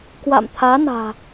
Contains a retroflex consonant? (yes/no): no